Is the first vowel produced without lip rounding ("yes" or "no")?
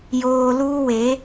no